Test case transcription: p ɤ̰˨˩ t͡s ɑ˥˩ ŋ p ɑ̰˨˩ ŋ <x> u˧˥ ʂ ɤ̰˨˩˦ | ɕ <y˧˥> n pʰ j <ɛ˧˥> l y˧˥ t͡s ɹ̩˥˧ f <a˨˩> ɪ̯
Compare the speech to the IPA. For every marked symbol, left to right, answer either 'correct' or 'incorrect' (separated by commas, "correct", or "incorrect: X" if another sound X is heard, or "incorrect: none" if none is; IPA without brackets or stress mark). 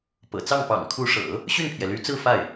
incorrect: kʰ, incorrect: y˥˩, incorrect: ɛ˩, incorrect: a˥˩